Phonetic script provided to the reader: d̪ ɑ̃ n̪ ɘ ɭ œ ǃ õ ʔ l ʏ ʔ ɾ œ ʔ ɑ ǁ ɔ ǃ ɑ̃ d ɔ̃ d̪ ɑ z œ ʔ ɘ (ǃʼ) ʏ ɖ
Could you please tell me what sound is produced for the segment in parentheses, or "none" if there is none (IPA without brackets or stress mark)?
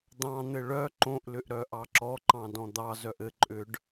ǃʼ